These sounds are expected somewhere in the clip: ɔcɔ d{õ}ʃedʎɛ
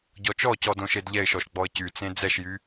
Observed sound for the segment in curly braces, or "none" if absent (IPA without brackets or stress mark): õ